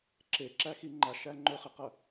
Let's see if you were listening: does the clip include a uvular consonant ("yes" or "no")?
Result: yes